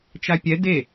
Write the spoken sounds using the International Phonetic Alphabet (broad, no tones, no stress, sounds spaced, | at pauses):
t͡ʃ a pʲ ɛ d e